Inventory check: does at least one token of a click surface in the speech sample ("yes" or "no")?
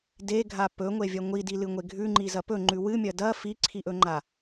yes